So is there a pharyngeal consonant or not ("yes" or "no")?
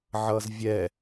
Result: yes